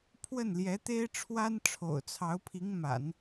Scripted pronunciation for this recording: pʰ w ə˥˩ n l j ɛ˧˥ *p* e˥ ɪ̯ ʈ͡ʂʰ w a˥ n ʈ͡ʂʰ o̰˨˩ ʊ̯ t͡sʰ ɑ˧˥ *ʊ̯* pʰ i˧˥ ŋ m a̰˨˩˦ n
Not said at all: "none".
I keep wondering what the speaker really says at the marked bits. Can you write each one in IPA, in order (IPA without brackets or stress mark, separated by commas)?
t̪, ʊ̯